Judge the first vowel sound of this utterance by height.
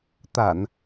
low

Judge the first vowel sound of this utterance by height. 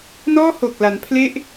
mid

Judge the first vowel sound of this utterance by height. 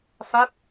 low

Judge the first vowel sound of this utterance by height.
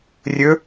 mid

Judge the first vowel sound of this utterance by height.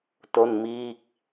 mid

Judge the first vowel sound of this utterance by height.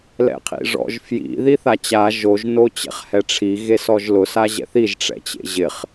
mid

